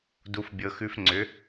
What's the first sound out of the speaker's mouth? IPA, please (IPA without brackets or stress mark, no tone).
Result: d